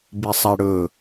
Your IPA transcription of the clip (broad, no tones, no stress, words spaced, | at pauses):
bisˤæɽɵ